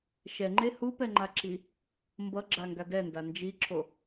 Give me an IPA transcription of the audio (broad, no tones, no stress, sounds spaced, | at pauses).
ʃ ɛ ŋ͡ǃ e h u p ɛ ŋ͡ǃ a ǁ i | m b ʌ ɡ͡ǁ a ŋ ɡ a d ɛ n d a n d͡ʒ i ǁ o